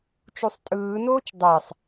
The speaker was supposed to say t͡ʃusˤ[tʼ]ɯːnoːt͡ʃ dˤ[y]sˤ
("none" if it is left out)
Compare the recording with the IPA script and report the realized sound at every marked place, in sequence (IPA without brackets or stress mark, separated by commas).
tʼ, e